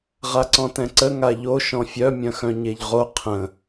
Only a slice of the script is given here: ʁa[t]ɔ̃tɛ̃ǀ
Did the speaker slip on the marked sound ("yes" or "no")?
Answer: yes